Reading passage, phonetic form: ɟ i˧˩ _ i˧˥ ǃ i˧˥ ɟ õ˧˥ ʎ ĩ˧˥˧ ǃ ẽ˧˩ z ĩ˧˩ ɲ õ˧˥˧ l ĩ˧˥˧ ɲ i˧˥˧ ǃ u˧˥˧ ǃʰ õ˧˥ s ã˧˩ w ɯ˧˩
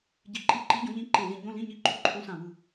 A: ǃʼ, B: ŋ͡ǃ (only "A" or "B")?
A